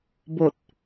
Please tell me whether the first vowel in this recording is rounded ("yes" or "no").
yes